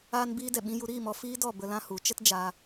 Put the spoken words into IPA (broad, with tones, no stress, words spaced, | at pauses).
aː˧nbiː˧ dɛ˨ɓĩ˧ju˧ ɾiː˦˨mɔ˨ fiː˦dɔ˦˨ bə˧lã˦hu˨˦ t͡ʃə˦td͡ʒaː˧